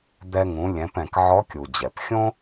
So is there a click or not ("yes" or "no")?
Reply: no